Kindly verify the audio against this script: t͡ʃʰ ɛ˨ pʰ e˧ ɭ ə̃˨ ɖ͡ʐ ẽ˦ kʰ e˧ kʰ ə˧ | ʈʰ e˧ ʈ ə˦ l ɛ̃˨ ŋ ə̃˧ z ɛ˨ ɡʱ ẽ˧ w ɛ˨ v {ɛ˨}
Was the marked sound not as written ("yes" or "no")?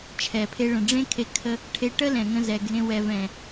yes